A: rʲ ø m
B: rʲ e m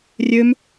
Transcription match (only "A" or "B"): A